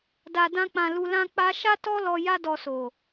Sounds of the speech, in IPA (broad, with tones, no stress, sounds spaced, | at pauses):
d a˨ d ã˧ k͡p ã˨ l u˧ l ã˦ k͡p a˦ ʃ a˦ t ɔ˦ l ɔ˧ j a˦ d ɔ˧ s o˨